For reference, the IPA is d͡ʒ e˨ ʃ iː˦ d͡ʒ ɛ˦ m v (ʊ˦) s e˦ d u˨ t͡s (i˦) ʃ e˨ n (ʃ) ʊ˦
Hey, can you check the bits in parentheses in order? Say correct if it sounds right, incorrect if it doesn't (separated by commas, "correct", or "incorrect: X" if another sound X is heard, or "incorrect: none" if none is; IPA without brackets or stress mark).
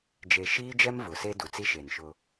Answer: incorrect: ʊ˨, correct, correct